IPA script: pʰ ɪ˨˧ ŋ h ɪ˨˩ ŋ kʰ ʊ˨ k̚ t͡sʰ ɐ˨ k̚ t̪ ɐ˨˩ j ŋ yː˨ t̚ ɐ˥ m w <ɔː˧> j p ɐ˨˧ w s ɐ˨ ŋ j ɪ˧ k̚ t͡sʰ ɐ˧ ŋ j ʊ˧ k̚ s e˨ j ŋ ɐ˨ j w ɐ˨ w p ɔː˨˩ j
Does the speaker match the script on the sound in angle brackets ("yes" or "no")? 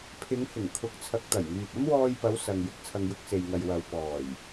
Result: yes